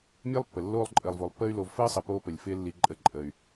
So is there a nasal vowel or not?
no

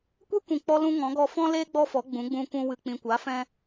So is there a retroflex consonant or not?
no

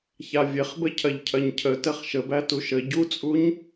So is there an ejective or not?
yes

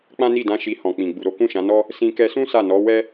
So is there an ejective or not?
no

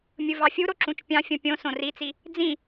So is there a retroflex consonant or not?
no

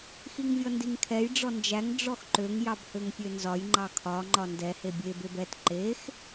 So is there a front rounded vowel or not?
yes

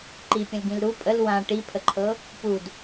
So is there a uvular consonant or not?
no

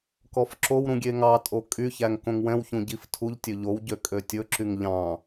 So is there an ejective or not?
yes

